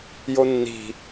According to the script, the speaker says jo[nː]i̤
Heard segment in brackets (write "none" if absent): nː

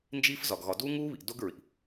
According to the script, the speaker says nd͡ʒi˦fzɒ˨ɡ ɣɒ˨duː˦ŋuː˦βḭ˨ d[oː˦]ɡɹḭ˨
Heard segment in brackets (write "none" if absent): o˦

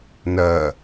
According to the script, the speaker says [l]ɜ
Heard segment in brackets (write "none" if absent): n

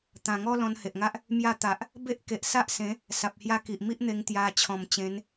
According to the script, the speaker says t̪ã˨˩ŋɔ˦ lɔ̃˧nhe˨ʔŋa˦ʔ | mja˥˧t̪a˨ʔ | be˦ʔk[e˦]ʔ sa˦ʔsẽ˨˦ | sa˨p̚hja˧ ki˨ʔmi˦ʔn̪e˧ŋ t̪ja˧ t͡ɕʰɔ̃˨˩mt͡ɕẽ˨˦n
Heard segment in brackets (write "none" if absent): e˨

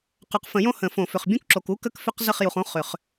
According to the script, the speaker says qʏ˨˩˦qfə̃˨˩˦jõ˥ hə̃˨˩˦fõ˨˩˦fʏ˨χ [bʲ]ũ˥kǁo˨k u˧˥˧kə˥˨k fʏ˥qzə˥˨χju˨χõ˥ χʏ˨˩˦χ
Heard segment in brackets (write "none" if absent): bʲ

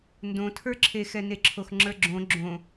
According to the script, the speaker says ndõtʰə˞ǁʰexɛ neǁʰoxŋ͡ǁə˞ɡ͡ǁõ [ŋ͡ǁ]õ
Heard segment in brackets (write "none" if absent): ɡ͡ǁ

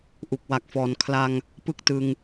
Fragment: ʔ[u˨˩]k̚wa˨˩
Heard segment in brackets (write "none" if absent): u˨˩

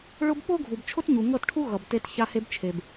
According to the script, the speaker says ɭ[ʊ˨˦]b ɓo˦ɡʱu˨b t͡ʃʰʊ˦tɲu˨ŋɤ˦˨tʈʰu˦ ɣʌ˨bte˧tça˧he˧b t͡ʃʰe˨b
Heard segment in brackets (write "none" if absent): ʊ˦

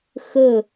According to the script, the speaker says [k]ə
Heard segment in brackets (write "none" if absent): x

